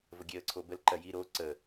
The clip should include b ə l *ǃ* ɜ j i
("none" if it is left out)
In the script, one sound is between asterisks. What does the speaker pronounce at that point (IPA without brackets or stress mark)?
ǃ